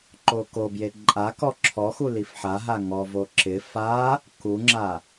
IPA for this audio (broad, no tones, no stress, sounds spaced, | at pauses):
ǃ o k o b j e ǃʼ a k ɔ ǁʰ ɔ x u l i f ħ a ɦ a ŋ ɔ v o ǁ ɪ f a | k u ŋ͡ǁ a